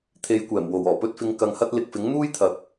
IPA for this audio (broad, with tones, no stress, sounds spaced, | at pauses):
t̪ʰ e˨˧ j kʷ ɛː˨˩ m w o˨˩ w ɔː˨˩ p ɵ˧ t̚ f ɪ˨˧ ŋ k ɐ˨ ŋ h ɐ˧ t̚ l ɪ˨ k̚ f ɪ˨˥ ŋ n̪ uː˥ j t̪ʰ ɐ˨˥ k̚